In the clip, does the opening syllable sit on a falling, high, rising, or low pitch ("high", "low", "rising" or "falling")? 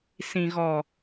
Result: low